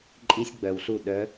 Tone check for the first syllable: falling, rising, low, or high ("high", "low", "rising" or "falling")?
high